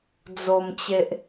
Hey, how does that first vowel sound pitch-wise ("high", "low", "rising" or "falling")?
low